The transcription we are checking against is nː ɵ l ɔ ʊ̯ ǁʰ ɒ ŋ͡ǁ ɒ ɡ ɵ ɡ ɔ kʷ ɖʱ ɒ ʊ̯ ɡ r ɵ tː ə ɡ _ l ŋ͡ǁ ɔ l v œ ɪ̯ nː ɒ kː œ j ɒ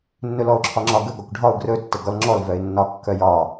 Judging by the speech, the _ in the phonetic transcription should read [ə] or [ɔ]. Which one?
ɔ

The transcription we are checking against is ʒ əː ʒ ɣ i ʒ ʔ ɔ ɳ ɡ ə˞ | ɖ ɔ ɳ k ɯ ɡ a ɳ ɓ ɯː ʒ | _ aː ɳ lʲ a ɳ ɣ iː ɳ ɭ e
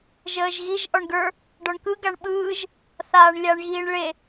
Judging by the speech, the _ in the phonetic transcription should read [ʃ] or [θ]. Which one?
θ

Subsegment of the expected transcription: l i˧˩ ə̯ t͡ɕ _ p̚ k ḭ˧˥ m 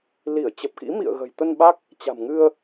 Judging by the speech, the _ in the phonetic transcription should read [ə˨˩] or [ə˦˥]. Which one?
ə˨˩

